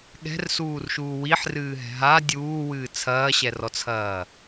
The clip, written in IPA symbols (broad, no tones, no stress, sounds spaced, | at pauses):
ɠ ɛ̤ r s uː r ʃ uː w i ħ r ɨː ɦ ɛ̤ ɦ a dʲ uː w ɨː t͡sʰ ɐː ɕ ɛ r ɔ t͡sʰ ɐː